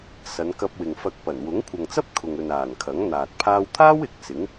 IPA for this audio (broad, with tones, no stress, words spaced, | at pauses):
sɐ˨˧nkɐ˧p̚wɪ˨ŋfɐ˧k̚ pɐ˨˩nwʊ˨˥ŋ kʷʰɐ˨ŋt͡sɐ˥p̚ kʰʊ˨ŋɵ˨naː˨˩n kʰɐ˨˥ŋn̪aː˨t̚ pʰaː˧wt̪ʰaː˥w ɪ˨˥k̚sɪ˨˥ŋ